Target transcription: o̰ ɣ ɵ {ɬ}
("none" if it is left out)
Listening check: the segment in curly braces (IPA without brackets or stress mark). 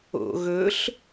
ɬ